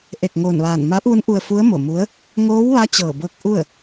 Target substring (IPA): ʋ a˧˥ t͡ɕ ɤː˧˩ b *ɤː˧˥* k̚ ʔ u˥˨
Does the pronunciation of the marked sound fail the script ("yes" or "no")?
no